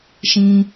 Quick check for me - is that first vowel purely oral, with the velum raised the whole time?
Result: no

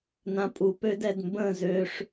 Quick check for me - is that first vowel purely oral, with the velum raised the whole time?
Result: no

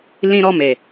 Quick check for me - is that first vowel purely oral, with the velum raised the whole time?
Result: no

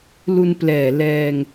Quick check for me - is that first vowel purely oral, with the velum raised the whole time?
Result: yes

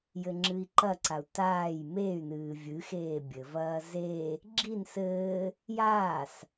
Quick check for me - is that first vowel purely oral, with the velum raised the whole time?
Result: yes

